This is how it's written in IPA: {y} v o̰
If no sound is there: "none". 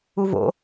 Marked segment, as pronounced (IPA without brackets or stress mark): u